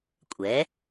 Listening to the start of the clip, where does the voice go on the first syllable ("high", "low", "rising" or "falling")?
rising